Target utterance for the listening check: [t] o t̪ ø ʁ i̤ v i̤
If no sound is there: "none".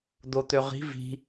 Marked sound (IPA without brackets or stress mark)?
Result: d̪